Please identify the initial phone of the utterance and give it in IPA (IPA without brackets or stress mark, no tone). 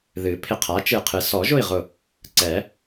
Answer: ð